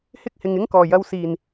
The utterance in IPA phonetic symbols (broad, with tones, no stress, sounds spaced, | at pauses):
h ɪ˥ k̚ h ɪ˨ ŋ ɪ˥ ŋ k ɔː˨˩ j ɐ˧ w s iː˨˩ n